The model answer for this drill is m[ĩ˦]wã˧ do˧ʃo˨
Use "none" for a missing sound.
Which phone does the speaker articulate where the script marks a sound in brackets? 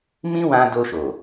ĩ˦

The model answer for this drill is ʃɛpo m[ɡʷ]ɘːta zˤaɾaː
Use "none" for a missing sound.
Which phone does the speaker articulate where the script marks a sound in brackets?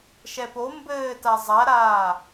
b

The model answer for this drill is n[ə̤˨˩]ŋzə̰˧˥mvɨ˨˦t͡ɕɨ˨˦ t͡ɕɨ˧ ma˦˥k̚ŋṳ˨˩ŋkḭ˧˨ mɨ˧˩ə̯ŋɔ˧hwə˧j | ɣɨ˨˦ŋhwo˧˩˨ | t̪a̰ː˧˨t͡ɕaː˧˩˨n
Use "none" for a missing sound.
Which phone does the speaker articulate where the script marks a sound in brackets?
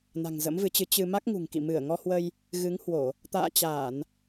a̤˨˩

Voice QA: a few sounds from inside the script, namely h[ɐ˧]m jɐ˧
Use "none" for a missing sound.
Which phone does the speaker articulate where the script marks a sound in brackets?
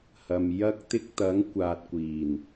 ɐ˨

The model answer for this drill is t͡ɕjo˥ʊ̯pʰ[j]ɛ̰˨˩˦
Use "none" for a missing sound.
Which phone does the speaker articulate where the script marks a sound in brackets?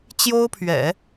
ɥ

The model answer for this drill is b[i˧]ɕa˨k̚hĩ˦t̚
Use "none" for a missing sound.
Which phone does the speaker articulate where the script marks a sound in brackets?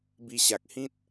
i˧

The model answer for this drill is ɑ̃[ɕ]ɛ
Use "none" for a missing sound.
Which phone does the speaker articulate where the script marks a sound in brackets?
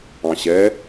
ɕ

